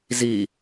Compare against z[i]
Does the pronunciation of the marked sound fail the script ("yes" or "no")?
no